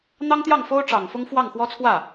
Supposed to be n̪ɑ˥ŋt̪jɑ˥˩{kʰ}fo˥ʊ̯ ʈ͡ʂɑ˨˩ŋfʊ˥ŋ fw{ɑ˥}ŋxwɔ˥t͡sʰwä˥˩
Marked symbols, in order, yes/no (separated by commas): no, no